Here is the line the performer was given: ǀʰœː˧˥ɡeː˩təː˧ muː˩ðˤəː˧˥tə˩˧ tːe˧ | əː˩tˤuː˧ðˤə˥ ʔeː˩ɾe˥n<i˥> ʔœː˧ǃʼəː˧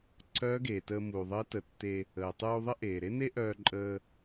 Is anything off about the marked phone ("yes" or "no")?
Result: yes